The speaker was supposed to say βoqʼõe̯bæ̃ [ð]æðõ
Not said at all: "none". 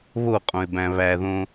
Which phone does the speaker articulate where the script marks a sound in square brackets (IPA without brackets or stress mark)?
β